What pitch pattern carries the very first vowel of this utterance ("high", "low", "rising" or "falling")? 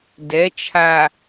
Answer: rising